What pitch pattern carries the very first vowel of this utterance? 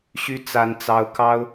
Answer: high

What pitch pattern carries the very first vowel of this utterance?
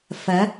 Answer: rising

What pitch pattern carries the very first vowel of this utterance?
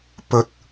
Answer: low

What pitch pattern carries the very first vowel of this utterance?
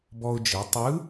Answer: high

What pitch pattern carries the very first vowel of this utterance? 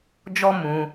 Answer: high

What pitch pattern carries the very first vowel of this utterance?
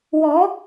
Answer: rising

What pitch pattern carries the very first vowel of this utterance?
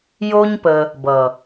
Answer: high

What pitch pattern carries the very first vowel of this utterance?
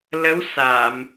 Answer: rising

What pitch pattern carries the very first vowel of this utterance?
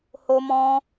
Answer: high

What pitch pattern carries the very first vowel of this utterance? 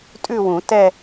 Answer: falling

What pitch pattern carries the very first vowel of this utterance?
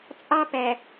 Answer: high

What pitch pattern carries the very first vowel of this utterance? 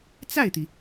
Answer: falling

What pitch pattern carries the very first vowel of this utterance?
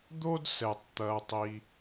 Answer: high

